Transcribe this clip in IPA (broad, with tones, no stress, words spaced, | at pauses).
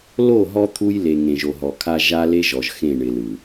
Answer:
lo˦˨ɦɔ˦ t̪ʰu˦jle˨ ŋẽ˨ʒo˨ɦɔ˨kʰa˦ ʒa˦le˦ʒɔ˨ʒ xẽ˦˨ɳɪ˨lɯ˨